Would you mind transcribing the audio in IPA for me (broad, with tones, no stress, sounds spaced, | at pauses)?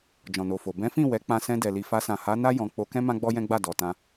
d͡ʒ ɔ̃˨ n o˨ f o˨ b ɛ̃˨˦ f ĩ˦˨ w ɛ˨˦ k͡p ã˧ s ɛ̃˧ d ɛ˨ l i˨ f a˧ s ã˨ h a˨˦ n a˦ j ɔ̃˧ k͡p o˧ k ɛ̃˦ m ã˦ ɡ͡b ɔ˦ j ɛ̃˦ ɡ͡b a˦˨ d ɔ˨ t ã˧